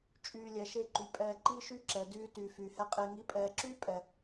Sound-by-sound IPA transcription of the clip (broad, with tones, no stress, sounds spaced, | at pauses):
t͡ʃʼ yː˨ lʲ ɛ˨ ʃ e˧ ǃ y˨ pʼ ɛː˨ ǃ i˧ ʃ y˧ ǁ ɛ˨ d yː˧ t yː˨ f yː˨ h ɛ˧ qʼ e˧ ŋ i˨˦ pʼ ɛː˨ ǁ yː˦ pʼ ɛ˨